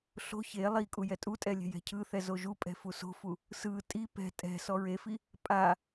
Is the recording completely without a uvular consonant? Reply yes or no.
yes